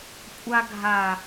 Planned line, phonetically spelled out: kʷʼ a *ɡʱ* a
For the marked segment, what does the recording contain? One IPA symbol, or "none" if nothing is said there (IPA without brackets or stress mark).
ɡʱ